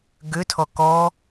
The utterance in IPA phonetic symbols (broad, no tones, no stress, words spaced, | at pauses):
ɡʏtʰɔ kɔ